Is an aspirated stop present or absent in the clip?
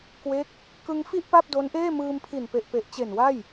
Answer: present